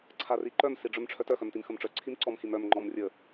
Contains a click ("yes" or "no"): yes